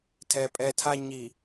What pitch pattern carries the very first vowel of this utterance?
low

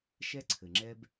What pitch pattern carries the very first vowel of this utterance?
high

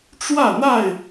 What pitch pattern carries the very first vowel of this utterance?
falling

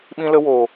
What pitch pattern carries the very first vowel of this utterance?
high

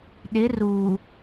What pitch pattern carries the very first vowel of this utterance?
rising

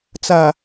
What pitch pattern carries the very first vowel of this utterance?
low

